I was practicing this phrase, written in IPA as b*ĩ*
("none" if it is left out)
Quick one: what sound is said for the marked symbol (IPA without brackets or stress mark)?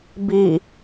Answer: i